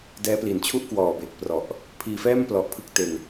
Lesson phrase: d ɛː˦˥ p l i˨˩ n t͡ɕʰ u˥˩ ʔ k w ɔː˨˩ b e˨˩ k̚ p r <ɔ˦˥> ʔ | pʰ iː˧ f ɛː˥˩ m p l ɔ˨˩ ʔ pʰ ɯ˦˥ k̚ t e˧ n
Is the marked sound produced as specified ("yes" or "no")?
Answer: no